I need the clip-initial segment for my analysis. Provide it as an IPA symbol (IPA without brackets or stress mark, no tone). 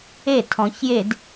e